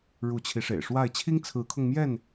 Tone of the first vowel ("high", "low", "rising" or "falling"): rising